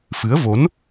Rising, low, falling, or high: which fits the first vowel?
rising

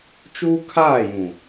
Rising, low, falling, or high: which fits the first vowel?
high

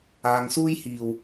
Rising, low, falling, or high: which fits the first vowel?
low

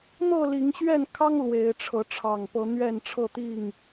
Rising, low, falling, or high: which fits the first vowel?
falling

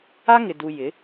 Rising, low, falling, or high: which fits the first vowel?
high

